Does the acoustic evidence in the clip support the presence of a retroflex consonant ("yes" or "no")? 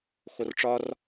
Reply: yes